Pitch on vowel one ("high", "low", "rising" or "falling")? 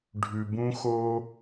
low